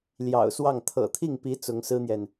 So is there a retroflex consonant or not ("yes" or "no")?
no